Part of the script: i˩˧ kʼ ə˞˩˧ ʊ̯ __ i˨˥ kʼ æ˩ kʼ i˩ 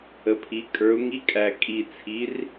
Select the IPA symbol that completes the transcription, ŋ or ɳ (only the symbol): ŋ